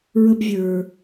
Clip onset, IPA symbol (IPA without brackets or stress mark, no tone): ɹ